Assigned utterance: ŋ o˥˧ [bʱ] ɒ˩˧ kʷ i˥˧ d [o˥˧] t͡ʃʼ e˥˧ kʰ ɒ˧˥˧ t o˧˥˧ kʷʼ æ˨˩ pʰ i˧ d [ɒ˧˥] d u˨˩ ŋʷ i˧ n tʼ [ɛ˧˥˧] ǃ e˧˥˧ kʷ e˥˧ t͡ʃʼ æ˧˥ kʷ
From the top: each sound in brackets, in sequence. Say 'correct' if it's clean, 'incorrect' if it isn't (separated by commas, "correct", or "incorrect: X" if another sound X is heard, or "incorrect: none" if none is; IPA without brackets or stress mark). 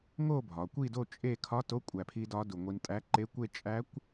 correct, correct, correct, incorrect: æ˧˥˧